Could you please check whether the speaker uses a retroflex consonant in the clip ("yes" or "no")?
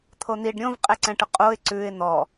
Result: yes